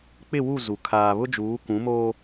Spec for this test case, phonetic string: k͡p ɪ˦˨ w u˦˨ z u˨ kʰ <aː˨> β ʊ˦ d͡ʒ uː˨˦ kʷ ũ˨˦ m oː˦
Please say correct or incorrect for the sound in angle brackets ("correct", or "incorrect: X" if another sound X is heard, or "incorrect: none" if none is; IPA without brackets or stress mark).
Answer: correct